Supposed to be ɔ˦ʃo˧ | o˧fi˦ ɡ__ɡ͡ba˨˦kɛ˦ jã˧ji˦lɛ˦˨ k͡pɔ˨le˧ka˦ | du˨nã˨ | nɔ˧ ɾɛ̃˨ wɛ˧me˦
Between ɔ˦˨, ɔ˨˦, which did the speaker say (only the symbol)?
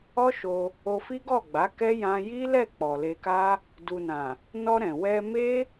ɔ˦˨